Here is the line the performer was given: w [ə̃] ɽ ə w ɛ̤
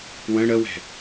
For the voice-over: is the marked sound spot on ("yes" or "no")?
yes